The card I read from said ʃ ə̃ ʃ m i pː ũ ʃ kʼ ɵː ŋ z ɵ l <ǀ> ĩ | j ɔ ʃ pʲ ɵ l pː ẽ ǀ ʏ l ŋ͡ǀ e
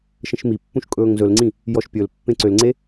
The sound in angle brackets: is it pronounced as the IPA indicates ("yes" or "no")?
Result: no